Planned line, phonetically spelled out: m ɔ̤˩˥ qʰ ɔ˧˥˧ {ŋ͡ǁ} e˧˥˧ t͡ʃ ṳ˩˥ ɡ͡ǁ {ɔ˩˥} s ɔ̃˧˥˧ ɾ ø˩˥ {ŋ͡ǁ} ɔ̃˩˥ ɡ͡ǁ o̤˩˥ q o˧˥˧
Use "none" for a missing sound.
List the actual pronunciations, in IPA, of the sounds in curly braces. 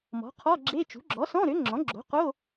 ɡ͡ǁ, ɔ˩˥, ŋ͡ǁ

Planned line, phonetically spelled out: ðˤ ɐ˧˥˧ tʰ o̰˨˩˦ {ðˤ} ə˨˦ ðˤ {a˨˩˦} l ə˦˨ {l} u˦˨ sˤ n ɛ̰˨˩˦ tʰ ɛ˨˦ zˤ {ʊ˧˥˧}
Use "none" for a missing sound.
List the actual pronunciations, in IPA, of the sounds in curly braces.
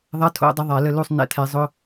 dˤ, a˨˩˦, l, ʊ˧˥˧

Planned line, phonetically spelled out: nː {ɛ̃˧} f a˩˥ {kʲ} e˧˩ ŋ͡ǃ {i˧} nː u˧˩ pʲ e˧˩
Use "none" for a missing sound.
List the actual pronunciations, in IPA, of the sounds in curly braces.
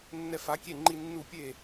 ɛ˧, kʲ, i˧

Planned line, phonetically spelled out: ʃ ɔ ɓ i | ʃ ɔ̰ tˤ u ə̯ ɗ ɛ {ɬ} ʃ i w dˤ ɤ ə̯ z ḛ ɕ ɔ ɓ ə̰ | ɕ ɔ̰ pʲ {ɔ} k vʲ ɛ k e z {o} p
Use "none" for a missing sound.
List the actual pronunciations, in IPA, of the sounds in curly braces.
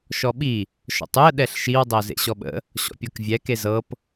ɬ, ɤ, ɤ

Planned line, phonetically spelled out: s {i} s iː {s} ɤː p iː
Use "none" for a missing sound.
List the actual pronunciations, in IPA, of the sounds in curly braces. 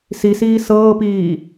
i, s

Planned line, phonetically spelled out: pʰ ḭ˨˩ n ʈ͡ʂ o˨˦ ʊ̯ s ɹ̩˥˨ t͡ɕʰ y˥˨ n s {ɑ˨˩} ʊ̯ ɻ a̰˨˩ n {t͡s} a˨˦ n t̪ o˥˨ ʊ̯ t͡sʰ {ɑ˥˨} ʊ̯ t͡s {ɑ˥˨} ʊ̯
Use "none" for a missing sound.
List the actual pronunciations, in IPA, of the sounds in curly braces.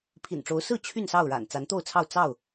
ɑ˥˨, t͡s, ɑ˥˨, ɑ˥˨

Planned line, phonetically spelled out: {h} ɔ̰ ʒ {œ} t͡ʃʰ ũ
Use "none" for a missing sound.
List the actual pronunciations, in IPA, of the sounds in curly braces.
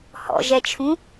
h, ɛ

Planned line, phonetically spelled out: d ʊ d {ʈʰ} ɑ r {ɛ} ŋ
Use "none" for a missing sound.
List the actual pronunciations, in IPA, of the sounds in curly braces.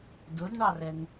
ɳ, ɛ

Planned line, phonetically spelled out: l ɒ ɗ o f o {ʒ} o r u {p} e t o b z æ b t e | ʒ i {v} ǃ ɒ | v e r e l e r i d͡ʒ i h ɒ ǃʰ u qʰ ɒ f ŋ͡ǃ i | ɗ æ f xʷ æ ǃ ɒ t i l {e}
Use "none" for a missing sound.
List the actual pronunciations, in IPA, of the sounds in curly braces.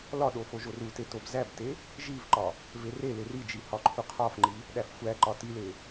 ʒ, t, v, e

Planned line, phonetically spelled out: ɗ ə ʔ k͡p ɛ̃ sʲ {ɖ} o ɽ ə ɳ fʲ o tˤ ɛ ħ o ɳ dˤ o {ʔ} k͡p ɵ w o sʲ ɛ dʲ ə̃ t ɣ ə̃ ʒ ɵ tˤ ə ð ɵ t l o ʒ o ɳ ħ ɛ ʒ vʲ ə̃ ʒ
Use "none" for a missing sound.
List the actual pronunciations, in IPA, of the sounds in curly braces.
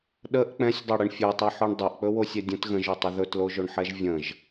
dˤ, ʔ

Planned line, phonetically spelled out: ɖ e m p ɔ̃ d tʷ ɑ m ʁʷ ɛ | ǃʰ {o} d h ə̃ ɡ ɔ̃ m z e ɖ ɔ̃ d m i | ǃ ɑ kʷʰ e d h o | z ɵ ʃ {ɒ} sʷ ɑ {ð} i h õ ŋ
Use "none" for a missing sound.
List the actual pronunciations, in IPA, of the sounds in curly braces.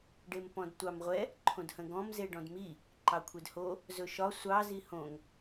õ, ɒ, z

